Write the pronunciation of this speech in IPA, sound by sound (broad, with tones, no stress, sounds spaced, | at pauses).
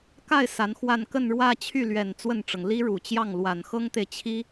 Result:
k a˥˩ ɪ̯ s a˧˥ n x w a˥˧ n k ə˥˧ n ɻ w ä˥˧ t͡ɕʰ y˥˩ l ɥ ɛ˨˩ n t͡s w ə˥˩ n ʈ͡ʂ ɤ˩ ŋ l i˥ ɻ u˨˩ t͡ɕ j ɑ˥˩ ŋ l w a˨˩ n x ɤ˥ ŋ t̪ e˨ ɪ̯ t͡ɕʰ i˥